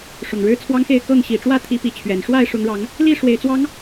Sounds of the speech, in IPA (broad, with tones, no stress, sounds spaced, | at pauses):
ʂ ʊ˨˩ ŋ ɻ ɻ̩˦ t͡sʰ w ɑ˦ ŋ x e˥˨ ɪ̯ k ɤ˥˨ ŋ ɕ i˨˩ ʈ͡ʂ w ä˥˨ t̪ʰ i˨˦ p i˨˦ t͡ɕʰ ɥ ɛ˨˩ n ʂ w a˥˨ ɪ̯ ʂ ʊ˨˦ ŋ ɻ ɑ˨˦ ŋ | l i˥˨ ʂ w e˨˩ ɪ̯ t͡s w ɑ˨˦ ŋ